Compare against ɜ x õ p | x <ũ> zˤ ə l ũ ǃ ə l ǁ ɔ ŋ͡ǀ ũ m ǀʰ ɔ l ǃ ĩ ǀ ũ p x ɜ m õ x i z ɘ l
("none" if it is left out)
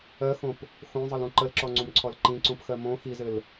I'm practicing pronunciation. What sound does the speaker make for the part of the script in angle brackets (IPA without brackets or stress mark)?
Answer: õ